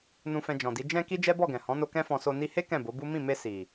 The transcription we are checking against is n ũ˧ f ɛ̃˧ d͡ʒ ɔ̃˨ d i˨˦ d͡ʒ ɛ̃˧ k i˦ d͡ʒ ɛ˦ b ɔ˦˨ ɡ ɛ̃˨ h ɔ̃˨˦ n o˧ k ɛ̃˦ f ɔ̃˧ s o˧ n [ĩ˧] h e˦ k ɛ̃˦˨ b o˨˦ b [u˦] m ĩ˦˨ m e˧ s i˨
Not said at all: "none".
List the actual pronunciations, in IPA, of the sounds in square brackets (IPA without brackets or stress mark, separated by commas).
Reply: i˧, u˦